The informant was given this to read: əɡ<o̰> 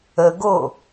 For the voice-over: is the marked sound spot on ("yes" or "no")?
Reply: no